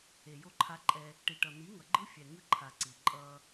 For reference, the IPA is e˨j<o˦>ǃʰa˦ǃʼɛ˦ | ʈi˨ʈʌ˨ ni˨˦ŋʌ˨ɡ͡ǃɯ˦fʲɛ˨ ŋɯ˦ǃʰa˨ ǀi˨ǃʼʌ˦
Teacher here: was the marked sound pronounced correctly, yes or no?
yes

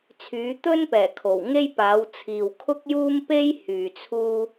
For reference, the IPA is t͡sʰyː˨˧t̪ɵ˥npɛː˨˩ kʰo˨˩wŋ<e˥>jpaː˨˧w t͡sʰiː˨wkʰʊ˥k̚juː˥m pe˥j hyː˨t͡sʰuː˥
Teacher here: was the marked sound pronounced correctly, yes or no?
yes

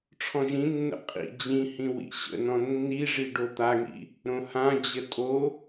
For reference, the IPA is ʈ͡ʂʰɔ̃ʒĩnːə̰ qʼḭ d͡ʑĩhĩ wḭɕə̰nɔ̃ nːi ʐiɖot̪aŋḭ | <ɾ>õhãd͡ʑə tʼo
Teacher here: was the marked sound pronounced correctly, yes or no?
yes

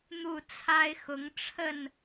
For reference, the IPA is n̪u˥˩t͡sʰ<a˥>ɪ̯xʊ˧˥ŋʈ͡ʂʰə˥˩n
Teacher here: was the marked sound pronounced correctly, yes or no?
yes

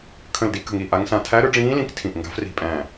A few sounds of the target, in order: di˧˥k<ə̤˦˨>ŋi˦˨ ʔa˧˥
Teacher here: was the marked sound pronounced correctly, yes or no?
yes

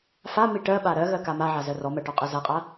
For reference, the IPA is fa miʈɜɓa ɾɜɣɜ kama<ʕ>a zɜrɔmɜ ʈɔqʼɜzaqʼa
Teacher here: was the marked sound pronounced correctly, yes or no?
yes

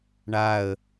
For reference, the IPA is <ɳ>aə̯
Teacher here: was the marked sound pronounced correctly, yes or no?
yes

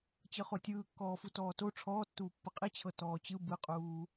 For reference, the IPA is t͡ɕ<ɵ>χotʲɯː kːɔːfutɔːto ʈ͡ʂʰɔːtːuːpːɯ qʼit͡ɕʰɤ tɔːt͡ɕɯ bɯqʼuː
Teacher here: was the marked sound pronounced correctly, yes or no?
no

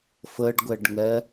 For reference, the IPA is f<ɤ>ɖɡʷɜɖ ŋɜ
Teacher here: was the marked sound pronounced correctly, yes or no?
yes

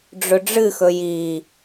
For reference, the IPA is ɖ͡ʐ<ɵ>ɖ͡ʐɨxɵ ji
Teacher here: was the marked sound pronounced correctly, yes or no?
yes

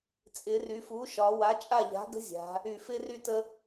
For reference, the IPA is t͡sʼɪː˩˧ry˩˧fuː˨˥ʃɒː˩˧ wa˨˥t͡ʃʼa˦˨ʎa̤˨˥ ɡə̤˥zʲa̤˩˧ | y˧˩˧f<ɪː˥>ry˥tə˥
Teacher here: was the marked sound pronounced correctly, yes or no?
yes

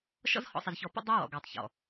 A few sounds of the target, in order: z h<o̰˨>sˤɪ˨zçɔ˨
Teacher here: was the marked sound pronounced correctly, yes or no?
no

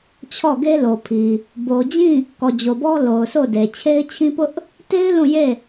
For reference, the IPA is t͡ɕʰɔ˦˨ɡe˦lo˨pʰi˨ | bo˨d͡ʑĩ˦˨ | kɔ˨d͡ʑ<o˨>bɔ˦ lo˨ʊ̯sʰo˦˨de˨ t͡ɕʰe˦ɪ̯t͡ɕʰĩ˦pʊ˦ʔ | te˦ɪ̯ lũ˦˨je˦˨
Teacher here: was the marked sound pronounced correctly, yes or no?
yes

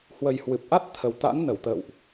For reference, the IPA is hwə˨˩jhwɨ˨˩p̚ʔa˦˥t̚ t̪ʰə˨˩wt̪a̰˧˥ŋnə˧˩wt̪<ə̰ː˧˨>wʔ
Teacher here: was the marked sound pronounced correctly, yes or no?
yes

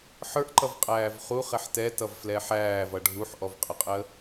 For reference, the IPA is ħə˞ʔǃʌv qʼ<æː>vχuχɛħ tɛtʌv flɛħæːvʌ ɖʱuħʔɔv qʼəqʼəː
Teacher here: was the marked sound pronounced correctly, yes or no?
yes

